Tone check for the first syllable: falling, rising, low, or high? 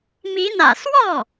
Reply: rising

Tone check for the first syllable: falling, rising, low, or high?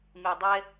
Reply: low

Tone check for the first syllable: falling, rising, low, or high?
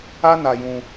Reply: high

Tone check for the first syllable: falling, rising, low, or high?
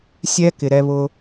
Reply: high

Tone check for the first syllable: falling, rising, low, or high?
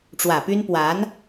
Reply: low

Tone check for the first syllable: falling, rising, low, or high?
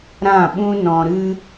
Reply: falling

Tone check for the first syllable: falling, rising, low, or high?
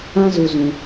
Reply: high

